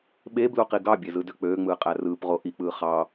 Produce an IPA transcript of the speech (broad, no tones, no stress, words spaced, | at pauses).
ɓe bluqiɡɑbʲe zɯdøk͡pøːŋ͡mɯː qʼærɯːpʁo ʔik͡pɯː χɑ